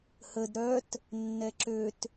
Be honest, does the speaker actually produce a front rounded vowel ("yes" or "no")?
yes